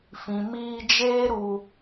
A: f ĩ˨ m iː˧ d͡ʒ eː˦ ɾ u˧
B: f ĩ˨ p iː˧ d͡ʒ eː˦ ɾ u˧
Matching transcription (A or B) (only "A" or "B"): A